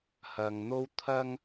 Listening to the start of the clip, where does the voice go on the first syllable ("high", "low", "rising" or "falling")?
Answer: low